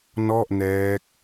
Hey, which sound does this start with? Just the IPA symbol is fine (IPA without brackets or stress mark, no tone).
n